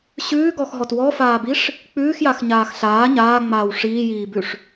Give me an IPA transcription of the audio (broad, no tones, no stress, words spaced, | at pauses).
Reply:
ɕʉːɡɔxɦɔt wɔfaːbiʂ | k͡pʉːxjaxɲaːx ɬaː ɲaːŋ͡maːw ʂiːjiːbʉʂ